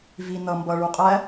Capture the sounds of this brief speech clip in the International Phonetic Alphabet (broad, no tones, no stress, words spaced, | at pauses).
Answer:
vi nʌ mbʌɭu qʼæ